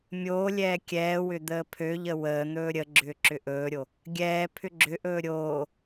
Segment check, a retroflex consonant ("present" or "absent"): absent